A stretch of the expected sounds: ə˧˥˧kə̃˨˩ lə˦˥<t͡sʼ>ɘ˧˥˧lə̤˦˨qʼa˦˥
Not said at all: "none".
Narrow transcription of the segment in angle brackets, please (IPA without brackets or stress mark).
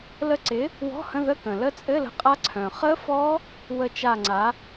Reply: t͡sʼ